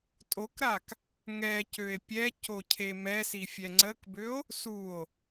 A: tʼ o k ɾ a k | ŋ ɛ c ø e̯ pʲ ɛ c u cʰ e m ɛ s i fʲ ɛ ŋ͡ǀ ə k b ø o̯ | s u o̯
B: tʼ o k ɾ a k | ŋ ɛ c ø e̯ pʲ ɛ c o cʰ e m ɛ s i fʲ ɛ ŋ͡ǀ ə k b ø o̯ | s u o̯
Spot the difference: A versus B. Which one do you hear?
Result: B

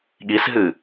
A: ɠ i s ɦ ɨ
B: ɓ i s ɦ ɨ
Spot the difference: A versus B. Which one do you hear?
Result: A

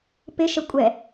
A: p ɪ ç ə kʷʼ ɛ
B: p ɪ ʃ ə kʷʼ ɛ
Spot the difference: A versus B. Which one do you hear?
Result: B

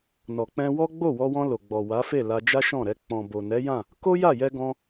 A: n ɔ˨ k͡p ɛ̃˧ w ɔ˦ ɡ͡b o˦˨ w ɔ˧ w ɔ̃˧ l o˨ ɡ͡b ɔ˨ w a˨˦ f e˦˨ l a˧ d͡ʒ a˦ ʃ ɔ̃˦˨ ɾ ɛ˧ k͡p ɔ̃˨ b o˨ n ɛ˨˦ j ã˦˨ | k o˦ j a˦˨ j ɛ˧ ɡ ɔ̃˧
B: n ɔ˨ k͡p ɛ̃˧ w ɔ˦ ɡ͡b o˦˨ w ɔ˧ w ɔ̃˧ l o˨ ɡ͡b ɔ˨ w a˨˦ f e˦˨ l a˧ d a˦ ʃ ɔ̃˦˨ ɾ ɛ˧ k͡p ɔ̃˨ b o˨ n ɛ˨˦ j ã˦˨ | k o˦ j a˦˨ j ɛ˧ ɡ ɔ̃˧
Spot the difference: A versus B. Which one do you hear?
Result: A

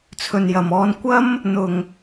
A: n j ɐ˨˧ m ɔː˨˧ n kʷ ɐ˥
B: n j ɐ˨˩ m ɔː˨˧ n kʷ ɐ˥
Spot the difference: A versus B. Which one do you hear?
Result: B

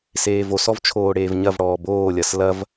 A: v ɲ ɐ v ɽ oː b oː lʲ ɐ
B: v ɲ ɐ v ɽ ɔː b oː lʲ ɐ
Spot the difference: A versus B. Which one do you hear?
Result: B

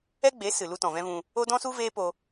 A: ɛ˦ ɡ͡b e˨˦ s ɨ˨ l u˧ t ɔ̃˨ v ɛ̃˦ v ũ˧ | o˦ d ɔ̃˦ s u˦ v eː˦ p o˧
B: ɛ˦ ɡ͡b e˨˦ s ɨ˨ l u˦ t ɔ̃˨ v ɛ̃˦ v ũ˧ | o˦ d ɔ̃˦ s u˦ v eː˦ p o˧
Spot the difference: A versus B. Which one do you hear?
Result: A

